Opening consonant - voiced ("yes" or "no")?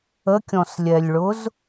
no